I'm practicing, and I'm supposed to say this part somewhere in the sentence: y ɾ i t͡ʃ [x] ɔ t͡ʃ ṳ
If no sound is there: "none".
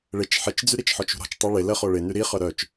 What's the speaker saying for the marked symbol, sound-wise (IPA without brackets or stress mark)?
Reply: ħ